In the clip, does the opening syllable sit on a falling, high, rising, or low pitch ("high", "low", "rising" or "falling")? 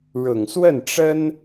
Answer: low